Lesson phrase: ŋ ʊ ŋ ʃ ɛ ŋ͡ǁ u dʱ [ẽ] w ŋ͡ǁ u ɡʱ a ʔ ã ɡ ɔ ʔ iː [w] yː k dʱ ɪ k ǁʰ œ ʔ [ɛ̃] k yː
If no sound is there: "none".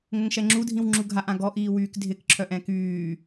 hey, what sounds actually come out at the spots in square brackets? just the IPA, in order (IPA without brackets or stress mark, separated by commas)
ĩ, w, ɛ̃